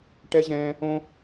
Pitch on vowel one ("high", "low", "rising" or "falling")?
high